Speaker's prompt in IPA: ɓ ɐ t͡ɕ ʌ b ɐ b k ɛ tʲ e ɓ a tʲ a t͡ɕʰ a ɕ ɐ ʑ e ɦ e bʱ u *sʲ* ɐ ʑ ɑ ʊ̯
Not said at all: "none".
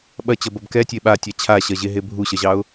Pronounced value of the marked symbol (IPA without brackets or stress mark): ɕ